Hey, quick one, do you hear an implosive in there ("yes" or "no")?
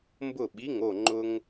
yes